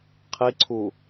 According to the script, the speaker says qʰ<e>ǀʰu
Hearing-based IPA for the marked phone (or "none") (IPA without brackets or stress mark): i